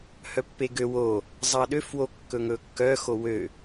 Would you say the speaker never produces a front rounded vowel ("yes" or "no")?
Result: no